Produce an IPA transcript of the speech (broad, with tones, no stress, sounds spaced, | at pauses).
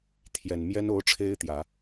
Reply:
t̪ʰ j ɛ˨˩ n m j ɛ˥ n o˧˥ ʊ̯ ʈ͡ʂʰ e˥ ɪ̯ t̪ j ä˨˩˦